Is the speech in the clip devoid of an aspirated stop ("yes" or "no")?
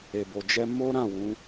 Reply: yes